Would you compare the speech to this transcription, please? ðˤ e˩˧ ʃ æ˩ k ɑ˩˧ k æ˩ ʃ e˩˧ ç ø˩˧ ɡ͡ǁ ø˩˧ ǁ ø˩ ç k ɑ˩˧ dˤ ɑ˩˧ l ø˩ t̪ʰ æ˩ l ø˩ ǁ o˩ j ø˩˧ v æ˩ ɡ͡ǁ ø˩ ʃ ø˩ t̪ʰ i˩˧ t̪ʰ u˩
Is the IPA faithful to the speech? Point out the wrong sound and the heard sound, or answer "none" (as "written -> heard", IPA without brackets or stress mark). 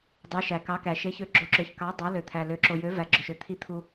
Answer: ðˤ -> dˤ